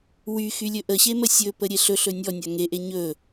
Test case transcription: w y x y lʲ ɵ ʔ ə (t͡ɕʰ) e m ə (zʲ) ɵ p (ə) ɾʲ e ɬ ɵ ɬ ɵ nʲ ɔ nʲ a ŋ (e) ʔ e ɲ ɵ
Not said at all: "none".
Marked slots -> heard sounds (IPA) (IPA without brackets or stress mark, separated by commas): ɕ, sʲ, ə, e